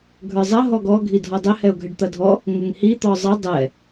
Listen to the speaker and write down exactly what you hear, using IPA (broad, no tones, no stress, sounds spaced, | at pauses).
ɡʱ ə˞ zˤ ɐ ɦ ɔ ɡ ɔ ɡʱ i dʱ ɔ dˤ ɘ h ɛ ʊ̯ ɡʱ ɘ ɖ t̪ ɐ dʱ ɔ | ŋ ɘ ŋ h i t̪ ɔ zˤ ɐ dˤ ɛ